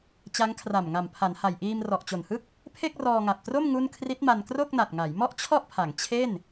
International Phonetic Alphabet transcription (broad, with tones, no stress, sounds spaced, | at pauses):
t͡ɕ a˦˥ ŋ kʰ r a˨˩ m ŋ a˨˩ m pʰ a˩˦ n h a˨˩ j ʔ iː˧ m r ɔ˨˩ ʔ t͡ɕ o˨˩ n h ɯ˥˩ k̚ | pʰ e˥˩ k̚ r ɔː˧ ŋ a˨˩ p̚ t r o˥˩ m ŋ u˥˩ n kʰ r i˦˥ t̚ m a˧ n k r o˥˩ k̚ n a˨˩ t̚ ŋ a˩˦ j m ɔ˥˩ ʔ t͡ɕʰ ɔ˥˩ ʔ pʰ a˩˦ ŋ t͡ɕʰ e˥˩ n